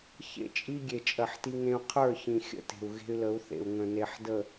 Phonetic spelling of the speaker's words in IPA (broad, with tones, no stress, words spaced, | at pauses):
çḛ˦˨t͡ʃʼi˦ ɡʲe˨ t͡ʃʼɜ˨ħti˦ŋẽ˦u̯ qʰə˞˦˨çĩ˨ xʲə̰˦ te̤˨u̯ɣe̤˦y̯lə˨˦u̯θḛ˨u̯ ŋə̃˨ne˨ħdə˨